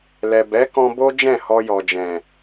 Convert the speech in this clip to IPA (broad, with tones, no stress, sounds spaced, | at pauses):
l ɛ˨ b ɛ˨˦ k ɔ̃˧ b o˦ d͡ʒ ɛ̃˦˨ h ɔ˧ j ɔ˨ d͡ʒ ɛ̃˨